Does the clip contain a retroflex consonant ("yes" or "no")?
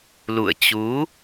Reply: no